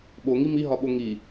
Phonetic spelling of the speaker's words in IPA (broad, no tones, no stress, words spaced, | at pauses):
ɓoŋi miɦɒɓo ŋi